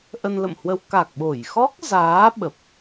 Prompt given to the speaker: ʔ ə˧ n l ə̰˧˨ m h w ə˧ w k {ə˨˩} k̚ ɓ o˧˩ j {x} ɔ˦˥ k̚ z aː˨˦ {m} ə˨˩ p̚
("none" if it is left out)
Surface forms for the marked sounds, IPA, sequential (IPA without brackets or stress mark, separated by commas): a˨˩, x, ɓ